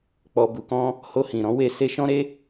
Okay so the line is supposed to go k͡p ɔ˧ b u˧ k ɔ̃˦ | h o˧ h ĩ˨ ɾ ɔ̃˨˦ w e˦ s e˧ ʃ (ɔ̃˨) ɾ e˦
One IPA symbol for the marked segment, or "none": ɔ̃˦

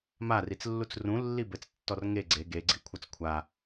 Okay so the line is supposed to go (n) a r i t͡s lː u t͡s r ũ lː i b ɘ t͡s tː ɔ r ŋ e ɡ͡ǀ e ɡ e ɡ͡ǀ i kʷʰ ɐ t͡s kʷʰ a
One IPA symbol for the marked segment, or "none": m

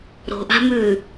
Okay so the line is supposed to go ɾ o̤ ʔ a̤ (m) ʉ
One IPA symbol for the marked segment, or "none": m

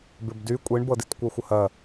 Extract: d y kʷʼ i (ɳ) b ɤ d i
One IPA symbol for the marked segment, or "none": ɳ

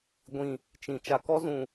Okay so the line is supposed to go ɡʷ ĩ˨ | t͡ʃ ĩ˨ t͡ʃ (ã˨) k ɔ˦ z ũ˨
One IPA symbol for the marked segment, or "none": a˨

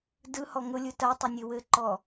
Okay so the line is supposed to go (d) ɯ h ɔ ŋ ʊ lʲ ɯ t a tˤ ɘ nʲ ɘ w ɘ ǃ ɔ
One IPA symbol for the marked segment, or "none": d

